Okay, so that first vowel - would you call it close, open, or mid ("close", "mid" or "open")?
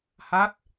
open